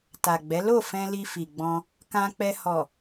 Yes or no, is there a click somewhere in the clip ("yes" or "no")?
no